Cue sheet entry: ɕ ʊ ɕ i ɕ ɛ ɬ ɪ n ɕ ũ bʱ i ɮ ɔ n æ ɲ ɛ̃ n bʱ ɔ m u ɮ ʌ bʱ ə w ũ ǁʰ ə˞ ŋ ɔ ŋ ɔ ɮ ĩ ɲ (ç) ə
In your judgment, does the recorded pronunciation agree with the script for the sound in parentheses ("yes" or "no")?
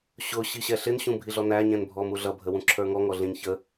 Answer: yes